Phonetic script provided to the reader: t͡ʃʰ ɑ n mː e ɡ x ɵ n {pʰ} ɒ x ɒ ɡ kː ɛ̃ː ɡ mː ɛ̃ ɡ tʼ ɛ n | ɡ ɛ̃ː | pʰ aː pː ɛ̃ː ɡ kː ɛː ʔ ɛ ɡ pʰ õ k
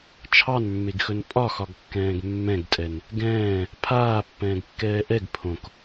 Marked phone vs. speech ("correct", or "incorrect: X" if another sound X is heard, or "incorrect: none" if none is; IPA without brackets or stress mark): incorrect: pʼ